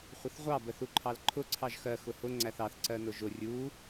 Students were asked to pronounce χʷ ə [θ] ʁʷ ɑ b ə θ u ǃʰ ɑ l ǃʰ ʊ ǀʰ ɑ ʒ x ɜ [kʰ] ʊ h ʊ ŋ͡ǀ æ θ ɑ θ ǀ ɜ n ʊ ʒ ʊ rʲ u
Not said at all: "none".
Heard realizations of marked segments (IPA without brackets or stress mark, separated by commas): θ, x